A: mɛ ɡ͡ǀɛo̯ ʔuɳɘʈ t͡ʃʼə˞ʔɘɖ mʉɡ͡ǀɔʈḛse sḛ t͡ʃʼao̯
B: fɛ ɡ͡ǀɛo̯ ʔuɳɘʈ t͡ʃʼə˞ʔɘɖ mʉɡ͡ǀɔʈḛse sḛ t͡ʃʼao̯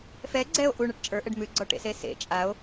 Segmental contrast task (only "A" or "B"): B